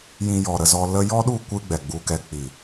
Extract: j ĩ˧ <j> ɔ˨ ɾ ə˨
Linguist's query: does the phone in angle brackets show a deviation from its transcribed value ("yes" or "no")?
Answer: no